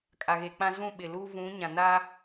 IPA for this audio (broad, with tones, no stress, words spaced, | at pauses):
kʼa˨ɣe˨k͡pã˦ zũ˦˨ɓɪ˨lu˦ vũ˨˦ɲã˨na˦